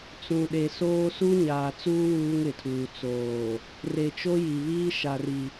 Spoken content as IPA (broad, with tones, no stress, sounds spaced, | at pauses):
t͡s ũ˨ ɗ e˨ s oː˦ s u˦ ɲ aː˨ t͡s uː˦ w uː˦ ŋ ɪ˨ tʰ uː˨ t͡s oː˨ | r e˨ t͡ʃ o˦ j i˨ β iː˦ ʃ a˨ r i˨